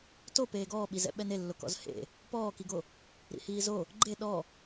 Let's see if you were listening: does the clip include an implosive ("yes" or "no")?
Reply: yes